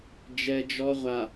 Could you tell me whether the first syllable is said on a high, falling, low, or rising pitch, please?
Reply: low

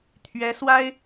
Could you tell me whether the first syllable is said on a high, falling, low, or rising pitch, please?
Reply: rising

